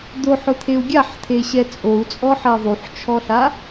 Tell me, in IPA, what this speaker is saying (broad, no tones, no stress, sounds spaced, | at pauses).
d̪ o ħ ʊ t̪ʰ e u̯ ɡʲ a ħ t̪ʰ e ɕ ɛ t͡sʼ o u̯ t͡sʼ ɔ ħ ɛ ðˤ u ħ t͡ʃʰ ɔ ɬ a